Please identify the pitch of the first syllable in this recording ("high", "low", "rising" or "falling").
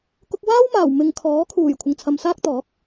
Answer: high